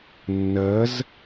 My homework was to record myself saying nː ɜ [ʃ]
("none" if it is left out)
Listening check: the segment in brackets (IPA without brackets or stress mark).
z